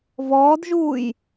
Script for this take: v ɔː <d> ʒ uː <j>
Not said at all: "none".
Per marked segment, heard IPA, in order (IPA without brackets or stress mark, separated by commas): d, j